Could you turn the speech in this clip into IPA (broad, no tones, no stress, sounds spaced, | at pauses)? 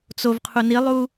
t͡s o v qʰ u n i lˠ u